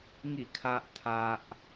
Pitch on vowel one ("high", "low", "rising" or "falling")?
falling